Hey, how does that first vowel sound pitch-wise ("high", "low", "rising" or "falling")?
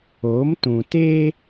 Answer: rising